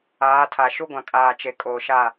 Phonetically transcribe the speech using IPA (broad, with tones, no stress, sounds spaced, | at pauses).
aː˨˦ tʰ a˨ ʃ u˦ ɡʷ ã˨ kʼ aː˨ t͡ʃ e˨ kʼ oː˨ ʃ a˦˨